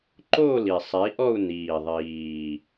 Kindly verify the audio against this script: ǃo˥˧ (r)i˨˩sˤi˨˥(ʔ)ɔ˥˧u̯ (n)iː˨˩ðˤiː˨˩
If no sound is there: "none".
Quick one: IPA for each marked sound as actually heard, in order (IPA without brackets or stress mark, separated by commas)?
l, ʔ, n